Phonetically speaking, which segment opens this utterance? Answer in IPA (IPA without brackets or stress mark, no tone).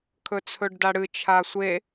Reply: kʰ